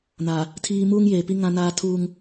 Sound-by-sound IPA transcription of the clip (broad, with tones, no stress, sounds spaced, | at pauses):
n a˨ | tʰ iː˦ m uː˦ ŋ j eː˨ p i˦ ŋ ã˦ n aː˦ tʰ uː˦ ŋ